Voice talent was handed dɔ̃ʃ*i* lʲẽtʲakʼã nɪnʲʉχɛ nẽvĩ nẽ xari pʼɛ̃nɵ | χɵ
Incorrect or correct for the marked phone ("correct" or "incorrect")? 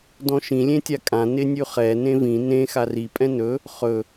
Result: incorrect